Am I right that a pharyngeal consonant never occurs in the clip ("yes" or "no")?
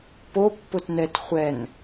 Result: yes